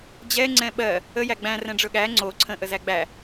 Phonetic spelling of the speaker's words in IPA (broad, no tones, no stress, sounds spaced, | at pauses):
d͡ʑ ɛ ŋ͡ǀ ɛ̃ ɓ ɜ | ə j æ ɡ͡b æ̃ r ɛ̃ ɖ͡ʐ ɵ ɠ æ ŋ͡ǀ o ǀʰ ə̃ ʔ ə z æ ɡ͡b æ